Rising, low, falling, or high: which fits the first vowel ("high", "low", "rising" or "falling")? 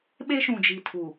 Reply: high